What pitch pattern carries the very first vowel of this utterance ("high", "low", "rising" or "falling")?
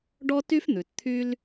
high